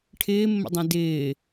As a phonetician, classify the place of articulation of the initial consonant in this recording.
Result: retroflex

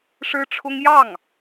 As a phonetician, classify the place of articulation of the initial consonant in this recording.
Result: retroflex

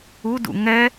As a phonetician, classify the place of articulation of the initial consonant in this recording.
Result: alveolar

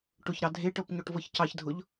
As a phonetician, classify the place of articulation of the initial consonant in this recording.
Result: retroflex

